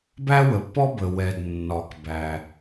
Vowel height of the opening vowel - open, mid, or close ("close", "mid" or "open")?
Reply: open